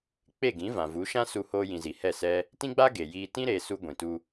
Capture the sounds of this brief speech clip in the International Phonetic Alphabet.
k͡p e˦˨ ɡ ĩ˨˦ v ã˨ v u˨˦ ʃ ã˦ s u˧ h oː˧ j ĩ˨ z i˨ h ɛ˦˨ s ɛ˦ | t ĩ˦ ɡ͡b a˦ ɡ e˨ j iː˧ t ĩ˧ ɾ eː˨ s u˧ ɡʷ ĩ˨ t u˧

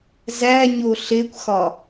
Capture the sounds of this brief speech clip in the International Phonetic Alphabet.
z æ ɲ o ɬ e kʷ x ɒ

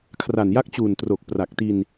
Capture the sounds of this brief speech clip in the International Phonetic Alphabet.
kʰ r a˨˩ n j a˦˥ k̚ t͡ɕ uː˨˩ n t r o˨˩ k̚ p r a˨˩ k̚ t i˧ n

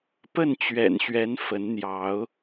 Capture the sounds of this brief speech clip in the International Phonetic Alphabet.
p ə˥˨ n t͡ɕ ɥ ɛ̰˨˩ n ɕ ɥ ɛ˨˦ n f ə˨˦ n n̪ j ɑ˨˦ ʊ̯

